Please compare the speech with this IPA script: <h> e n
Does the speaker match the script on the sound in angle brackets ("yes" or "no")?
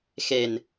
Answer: no